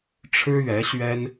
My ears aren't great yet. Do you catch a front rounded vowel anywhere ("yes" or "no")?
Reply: no